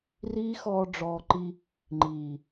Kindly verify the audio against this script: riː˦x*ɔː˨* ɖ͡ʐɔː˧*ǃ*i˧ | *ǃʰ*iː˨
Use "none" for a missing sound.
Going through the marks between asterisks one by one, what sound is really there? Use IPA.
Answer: ɔː˧, ǃ, ŋ͡ǃ

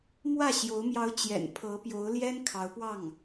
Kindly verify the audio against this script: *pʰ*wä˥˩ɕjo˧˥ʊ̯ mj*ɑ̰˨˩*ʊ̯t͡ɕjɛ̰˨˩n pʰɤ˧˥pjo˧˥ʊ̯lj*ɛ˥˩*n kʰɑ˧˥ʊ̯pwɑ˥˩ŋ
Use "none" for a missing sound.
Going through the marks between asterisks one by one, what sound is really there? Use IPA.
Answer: m, ɑ˧˥, ɛ˥

